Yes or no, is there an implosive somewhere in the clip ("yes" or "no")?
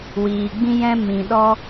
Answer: yes